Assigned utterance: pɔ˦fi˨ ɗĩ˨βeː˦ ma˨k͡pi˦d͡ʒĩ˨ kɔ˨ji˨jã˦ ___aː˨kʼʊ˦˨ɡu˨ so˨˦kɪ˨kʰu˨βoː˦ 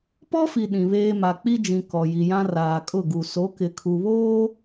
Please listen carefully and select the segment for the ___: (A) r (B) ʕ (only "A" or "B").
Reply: A